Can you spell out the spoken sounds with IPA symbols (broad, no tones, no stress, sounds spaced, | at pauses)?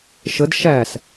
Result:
ʃ ə d ʃ æ s